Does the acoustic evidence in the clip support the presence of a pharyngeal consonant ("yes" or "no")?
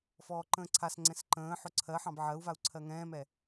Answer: yes